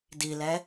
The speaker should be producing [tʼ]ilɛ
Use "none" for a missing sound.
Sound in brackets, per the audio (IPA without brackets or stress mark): d